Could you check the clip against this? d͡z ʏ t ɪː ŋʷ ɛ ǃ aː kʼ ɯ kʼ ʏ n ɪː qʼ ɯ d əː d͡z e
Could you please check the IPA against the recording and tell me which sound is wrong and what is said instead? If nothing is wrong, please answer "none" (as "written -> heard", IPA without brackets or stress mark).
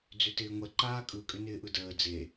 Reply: qʼ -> ʔ